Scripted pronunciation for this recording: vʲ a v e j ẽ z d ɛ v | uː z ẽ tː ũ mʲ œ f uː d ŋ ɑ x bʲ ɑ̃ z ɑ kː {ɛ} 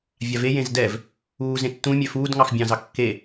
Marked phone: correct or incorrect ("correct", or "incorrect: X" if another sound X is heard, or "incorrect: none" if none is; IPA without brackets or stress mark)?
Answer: incorrect: e